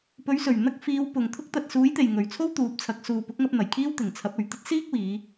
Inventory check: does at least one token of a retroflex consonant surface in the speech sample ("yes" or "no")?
no